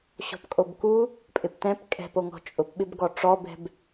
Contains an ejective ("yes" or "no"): yes